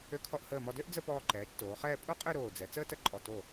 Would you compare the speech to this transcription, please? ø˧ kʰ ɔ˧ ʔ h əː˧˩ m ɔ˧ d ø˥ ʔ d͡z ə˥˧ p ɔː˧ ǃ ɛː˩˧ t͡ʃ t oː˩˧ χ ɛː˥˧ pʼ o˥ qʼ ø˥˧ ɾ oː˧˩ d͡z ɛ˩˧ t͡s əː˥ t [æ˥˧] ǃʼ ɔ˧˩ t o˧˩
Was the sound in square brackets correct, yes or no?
no